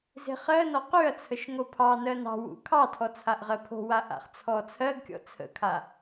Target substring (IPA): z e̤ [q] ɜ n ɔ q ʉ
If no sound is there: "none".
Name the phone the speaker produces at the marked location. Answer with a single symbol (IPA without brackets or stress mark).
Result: χ